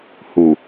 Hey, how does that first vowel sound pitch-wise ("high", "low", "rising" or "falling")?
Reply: low